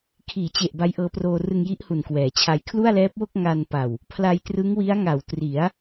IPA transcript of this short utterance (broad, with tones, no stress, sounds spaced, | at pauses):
kʰ iː˩˦ t͡ɕ e˨˩ ʔ b a˦˥ j ʔ ɤː˧ p r oː˧ r ɯ˧ ŋ j i˦˥ ʔ h u˨˩ n k w ɛː˩˦ t͡ɕʰ a˧ j kʰ l u˥˩ a̯ l ɛː˦˥ p̚ w o˥˩ k̚ ŋ a˧ n p a˨˩ w | pʰ l a˧ j t r ɯ˦˥ ŋ w i˦˥ a̯ ŋ a˨˩ w t r i˩˦ a̯